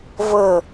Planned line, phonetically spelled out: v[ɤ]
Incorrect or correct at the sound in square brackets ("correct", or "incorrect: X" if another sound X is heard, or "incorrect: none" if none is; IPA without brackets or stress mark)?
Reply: correct